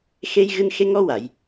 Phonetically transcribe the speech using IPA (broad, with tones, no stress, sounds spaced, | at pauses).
x e˧ j ɣ ɨ˧ n x e˧ ŋ ɔ˧ w a˨˩˨ j